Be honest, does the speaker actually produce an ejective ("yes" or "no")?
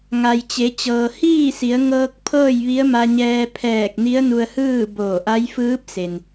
no